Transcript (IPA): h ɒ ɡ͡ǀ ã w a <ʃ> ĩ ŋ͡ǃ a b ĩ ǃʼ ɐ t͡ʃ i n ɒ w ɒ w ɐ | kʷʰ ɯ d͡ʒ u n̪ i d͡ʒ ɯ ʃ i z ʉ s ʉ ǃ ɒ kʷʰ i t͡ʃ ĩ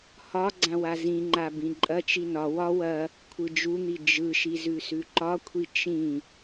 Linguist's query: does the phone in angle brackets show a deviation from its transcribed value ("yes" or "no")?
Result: yes